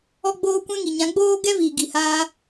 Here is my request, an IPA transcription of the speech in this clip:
ɔ˦ ɡ͡b oː˦ kʷ ɛ̃˦ ŋ i˨ ɲ ã˨˦ ɡ͡b oː˦ ɡ ɛ˦ v iː˨ ɡ i˨ h aː˦

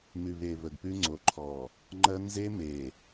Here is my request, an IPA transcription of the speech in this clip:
m ʉ˨ β e˨ β ə˨ ɡ p ʉ˦ ŋ͡ǀ o˨˦ ǃʰ ɔ˨ | ŋ͡ǃ ɜ˦ n z e˦ m e˨

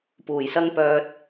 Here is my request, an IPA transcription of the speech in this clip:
p uː˨˩ j s ɐ˥ ŋ p œː˧ t̚

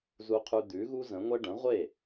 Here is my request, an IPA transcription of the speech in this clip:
z u˧ qʰ ʉ˧ d̪ ʉ˩˥ ɣ u˥ z ə̃˩˥ ŋʷ ɛ˥ ɖ ə̃˩˥ ʁʷ e˥˩

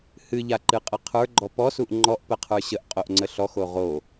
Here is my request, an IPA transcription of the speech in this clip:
h ɨ ʎ a ǃ ɨ qʼ ə qʰ ə˞ ɡ͡ǃ ɔ p ɔ s u ʔ ŋ͡ǃ ɔ ʔ p ə qʰ ə˞ ɕ ə ʔ qʼ o ʔ ŋ͡ǀ ə ɬ ɔ x o ʁ o

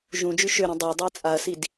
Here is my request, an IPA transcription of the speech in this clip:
ʒ ũ d͡ʒ y ʃ ø ɾ ũ dˤ ʊ ɐ̯ dˤ u ɐ̯ t͡sʼ a ɐ̯ s i d

